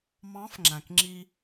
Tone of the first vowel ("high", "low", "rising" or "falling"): rising